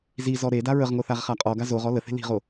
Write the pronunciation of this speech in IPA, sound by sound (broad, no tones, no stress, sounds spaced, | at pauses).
z i z ɔ ɾ e d a ɹ ə ʁ ŋ o θ a ʁ χ a qʼ ɔ ɡ a z o ʁ ɔ l ə θ e̤ l i̤ ʁ o